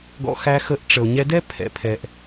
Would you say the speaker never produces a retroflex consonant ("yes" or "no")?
no